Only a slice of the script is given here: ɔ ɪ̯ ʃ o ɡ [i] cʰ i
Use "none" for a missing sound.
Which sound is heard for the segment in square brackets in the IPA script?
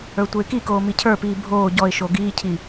iː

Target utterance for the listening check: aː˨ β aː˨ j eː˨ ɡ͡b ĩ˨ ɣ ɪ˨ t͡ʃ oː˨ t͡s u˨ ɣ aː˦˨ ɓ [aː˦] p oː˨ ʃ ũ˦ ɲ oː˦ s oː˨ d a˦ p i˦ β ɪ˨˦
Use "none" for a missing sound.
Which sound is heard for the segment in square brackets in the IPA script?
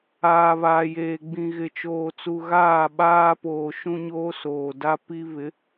aː˦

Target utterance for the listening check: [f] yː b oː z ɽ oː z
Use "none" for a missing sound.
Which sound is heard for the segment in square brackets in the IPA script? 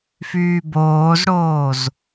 f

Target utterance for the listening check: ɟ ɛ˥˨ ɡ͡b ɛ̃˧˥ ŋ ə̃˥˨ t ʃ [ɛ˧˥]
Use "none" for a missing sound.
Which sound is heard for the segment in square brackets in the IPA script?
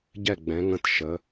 ə˧˥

